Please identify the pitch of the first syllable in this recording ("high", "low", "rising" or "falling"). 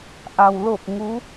low